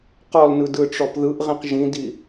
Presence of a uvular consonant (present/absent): present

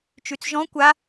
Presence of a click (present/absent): absent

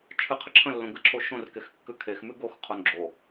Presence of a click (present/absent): present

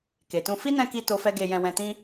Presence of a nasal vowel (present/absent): present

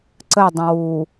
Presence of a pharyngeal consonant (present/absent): absent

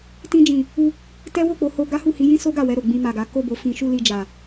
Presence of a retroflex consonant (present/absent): absent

